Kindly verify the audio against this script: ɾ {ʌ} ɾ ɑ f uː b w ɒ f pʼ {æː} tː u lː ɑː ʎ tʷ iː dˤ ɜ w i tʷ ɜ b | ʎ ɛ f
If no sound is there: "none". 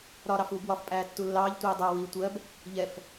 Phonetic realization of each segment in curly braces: ɒ, æː

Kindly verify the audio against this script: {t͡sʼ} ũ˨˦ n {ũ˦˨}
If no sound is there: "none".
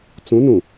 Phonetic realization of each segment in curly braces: t͡s, ũ˨

